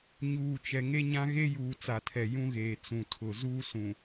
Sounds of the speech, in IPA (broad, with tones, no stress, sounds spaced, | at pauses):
ɲ uː˨ t͡ʃ ɛ˨ ŋ e˦ ɲ ã˦ ɣ e˦ j uː˨ t͡s a˨ tʰ ɛ˨ j ũ˦ ɣ eː˨ t͡s ũ˨ tʰ ʊ˨ z uː˦ s ũ˨